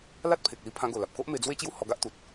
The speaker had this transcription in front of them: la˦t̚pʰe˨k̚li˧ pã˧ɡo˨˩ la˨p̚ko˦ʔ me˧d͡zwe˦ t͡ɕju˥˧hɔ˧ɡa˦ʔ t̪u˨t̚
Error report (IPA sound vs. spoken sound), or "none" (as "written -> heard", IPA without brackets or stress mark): p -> pʰ